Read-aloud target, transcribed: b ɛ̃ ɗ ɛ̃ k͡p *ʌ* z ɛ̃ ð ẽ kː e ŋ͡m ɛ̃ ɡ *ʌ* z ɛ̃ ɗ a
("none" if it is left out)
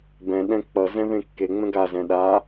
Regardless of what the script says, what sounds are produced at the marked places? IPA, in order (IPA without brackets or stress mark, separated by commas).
ʌ, a